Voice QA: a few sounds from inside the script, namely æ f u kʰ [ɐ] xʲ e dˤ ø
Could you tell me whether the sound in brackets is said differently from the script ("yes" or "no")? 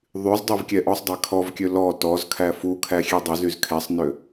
yes